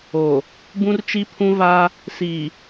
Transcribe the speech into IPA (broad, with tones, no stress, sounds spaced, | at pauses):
oː˨ | b ũ˦ r t͡ʃ i˦ pʰ ũ˦ v aː˦ | s iː˨